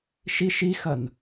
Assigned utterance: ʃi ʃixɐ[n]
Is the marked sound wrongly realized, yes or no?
no